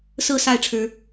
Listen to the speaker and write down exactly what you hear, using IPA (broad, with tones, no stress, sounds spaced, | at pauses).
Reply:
s ɹ̩˥˨ s a˥˨ ɪ̯ ʈ͡ʂʰ ɻ̩˨˦